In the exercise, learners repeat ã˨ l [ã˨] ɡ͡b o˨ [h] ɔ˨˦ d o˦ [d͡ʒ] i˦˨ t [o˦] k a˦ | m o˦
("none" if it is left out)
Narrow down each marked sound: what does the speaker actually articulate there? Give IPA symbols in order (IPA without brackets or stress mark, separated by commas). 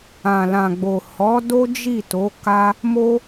ã˨, h, d͡ʒ, o˨˦